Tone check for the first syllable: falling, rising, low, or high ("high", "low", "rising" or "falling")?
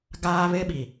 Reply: high